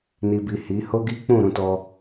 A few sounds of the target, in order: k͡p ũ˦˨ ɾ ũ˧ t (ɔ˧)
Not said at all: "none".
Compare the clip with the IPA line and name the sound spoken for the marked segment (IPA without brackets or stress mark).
ɔ˧